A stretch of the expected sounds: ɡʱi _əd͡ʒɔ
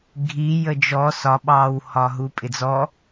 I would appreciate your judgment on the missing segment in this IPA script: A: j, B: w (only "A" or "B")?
A